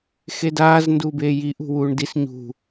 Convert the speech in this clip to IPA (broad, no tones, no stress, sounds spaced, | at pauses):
x e d aː z n d uː b eː j i ʔ ṳ w uː ɳ d i s ɲ ṳ